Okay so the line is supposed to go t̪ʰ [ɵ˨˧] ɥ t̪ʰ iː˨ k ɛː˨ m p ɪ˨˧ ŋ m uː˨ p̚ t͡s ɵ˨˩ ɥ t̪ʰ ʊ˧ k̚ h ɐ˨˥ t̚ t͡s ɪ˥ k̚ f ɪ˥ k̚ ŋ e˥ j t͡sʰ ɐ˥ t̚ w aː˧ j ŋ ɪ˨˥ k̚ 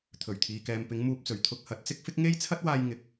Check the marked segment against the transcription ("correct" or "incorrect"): incorrect